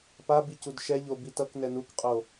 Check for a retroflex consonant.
absent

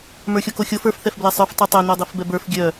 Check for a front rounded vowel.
present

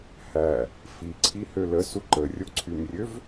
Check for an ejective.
absent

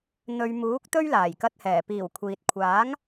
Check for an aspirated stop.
present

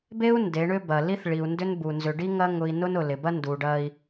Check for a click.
absent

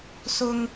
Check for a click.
absent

